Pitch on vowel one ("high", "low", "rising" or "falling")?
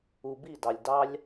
low